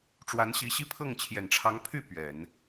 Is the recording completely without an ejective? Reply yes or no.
yes